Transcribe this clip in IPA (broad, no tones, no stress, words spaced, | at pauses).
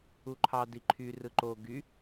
uǃʰɑ diǃʰy rɯǃo ɡy